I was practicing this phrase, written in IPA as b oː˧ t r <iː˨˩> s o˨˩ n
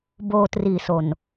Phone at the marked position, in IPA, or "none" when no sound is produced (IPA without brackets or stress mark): iː˨˩